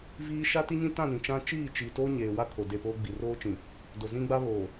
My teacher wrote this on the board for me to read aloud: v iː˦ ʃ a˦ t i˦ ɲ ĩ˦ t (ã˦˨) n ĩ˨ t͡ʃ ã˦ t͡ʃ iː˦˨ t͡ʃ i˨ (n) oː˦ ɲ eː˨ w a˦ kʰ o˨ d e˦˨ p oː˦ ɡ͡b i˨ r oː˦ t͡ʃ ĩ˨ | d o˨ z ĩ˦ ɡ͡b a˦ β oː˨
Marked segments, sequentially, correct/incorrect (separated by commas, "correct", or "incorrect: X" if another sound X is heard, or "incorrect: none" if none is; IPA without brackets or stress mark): correct, incorrect: t